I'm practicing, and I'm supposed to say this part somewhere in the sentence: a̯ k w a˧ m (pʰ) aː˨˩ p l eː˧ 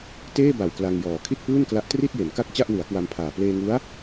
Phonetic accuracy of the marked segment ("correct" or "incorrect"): correct